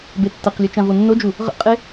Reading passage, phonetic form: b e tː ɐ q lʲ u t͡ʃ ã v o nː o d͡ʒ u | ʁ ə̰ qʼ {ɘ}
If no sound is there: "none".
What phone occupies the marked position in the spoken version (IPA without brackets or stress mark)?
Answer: e